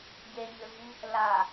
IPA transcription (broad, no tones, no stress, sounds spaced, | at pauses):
ɟ e ɲ ʏ v i | l a